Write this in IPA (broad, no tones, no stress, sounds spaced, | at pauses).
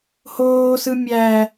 h oː s ɯ mʲ æ